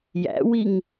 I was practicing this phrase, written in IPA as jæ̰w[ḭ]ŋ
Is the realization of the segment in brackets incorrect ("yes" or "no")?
yes